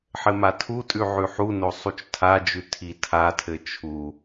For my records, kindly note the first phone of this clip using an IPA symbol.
ħ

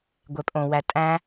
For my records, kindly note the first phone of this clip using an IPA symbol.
ɡʷ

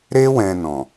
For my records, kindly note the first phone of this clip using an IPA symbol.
ɾ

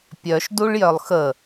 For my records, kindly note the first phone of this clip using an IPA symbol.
pʲ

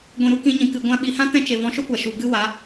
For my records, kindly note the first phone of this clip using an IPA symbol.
ɡʷ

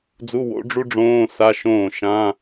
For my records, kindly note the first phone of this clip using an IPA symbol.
d͡z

